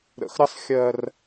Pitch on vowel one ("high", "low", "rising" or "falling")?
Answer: low